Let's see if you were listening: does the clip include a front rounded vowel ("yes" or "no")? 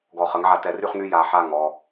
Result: yes